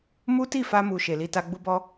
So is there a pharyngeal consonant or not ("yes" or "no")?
no